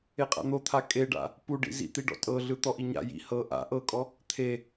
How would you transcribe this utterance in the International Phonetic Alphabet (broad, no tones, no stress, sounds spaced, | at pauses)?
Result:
e qʼ a̰ n̪ o t̪ʰ a kʼ e ɖ a̰ | p u ɖ ḭ z ḭ t̪ i ɖ ɔ̰ tʼ ɤ ɮ ɯ t̪ ɔ ʔ i ɲ a̰ j ḭ h ɤ ʔ a̰ ʔ ɤ kʼ ɔ | t̪ʰ e